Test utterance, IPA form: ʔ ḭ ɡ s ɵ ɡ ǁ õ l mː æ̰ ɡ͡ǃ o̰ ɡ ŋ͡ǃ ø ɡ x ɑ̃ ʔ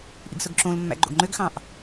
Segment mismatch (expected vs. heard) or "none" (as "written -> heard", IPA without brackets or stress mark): none